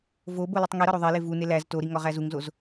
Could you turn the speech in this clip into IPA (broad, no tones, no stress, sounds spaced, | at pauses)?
v o b o l u tˤ ŋ i ɾ ɒ ɾ o ðˤ e l e v u n e l æ z t o ɾ i ŋ ɒ ʁ æ z u ŋ z o z